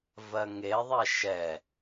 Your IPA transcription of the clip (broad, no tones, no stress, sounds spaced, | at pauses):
v ɜ ŋ e ðˤ ɛ ʃ ɛ